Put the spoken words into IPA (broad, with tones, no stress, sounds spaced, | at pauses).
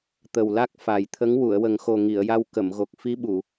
t̪ ə˨˩ w l a˦˥ k̚ f a˨˩ j t̪ʰ ə˧˥ ŋ w u˨˩˨ ə̯ w ə˨˩ ŋ x o˨˩ ŋ i˨˩˨ ə̯ j a˧ w k ə˨˩˨ m ɣ o˨˩ k̚ f i˧˥ ɓ u˨˩˨